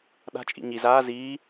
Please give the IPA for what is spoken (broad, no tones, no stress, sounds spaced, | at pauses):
ɗ a̤ t͡ʃʼ ḭ ɲ i z aː z iː